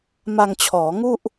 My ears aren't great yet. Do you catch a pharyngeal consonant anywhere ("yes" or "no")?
no